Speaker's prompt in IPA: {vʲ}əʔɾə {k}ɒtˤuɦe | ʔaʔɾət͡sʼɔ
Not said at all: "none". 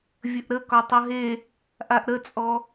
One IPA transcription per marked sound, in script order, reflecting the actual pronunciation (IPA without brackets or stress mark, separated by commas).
vʲ, k